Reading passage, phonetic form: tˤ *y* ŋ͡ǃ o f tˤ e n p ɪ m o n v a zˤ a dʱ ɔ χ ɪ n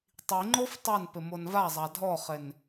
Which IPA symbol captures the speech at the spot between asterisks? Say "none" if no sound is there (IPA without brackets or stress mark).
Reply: i